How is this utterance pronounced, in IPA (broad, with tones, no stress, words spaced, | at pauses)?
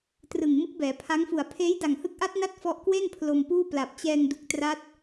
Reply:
trɯ˨˩ŋ mɯ˦˥k̚bɛː˩˦pʰa˦˥ŋfu˨˩a̯ pʰeː˦˥jda˨˩ŋhɯ˦˥k̚ʔa˦˥t̚ na˥˩t̚fɔ˦˥ʔkwe˥˩n pʰlo˧mpuː˥˩pla˨˩p̚ t͡ɕɛː˧ŋdu˨˩k̚tra˦˥t̚